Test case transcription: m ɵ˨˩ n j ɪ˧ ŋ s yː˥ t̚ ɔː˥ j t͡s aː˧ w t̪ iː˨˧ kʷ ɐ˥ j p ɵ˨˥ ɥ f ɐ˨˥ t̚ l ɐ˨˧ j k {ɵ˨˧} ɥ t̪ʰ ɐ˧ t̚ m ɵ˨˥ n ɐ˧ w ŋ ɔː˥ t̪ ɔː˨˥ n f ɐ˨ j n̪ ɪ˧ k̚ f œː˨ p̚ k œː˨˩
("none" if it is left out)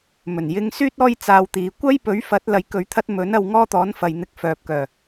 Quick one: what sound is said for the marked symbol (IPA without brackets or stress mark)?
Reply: ɵ˨˧